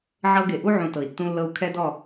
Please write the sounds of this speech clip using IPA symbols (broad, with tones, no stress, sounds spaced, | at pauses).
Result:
ʕ ɤ˦ ɡ e˨ ʔ u˦ ʕ ũ˨ t ɤ˨ i̯ tː ũ˦ lː ɤ˦ u̯ kʰ ɛ˦ d ɔ˦˨